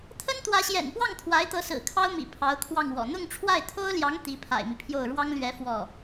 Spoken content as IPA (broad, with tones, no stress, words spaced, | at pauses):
t̪ʰə˥nt̪wä˧˥ɕjɛ̰˨˩npwɑ˥˩ŋ t̪ʰwa˧˥ɪ̯t̪ɤ˧˥sɹ̩˨˩ kʰɑ˥ʊ̯mḭ˨˩ pʰɑ˧˥ʊ̯kʰwɑ˥˩ŋwɔ̰˨˩ n̪ʊ˥˧ŋʈ͡ʂʰwa˥˩ɪ̯t̪ʰo˥ʊ̯ljɑ˧˥ŋ t̪i˧˥pʰa̰˨˩ɪ̯mi˦pʰjo˥˩ʊ̯ ɻwɑ˥ŋlɥɛ˧˥ fwɔ˥˩